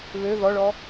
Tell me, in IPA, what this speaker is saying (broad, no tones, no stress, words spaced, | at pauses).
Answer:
βø ðɔɭɔ